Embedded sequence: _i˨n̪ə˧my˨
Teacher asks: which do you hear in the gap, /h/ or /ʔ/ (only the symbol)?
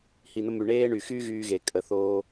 h